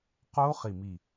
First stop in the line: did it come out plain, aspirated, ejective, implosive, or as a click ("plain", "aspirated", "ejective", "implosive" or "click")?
plain